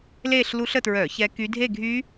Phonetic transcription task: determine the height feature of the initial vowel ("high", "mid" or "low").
mid